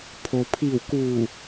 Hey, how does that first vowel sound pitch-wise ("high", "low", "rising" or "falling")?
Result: low